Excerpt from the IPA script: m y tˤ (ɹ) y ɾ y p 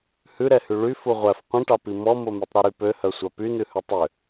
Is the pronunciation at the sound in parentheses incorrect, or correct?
incorrect